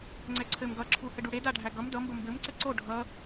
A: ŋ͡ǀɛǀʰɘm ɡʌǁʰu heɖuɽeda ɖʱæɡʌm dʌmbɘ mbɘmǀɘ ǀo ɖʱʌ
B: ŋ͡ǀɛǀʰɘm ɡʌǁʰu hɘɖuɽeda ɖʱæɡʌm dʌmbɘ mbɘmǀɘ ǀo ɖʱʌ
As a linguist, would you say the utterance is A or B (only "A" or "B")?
B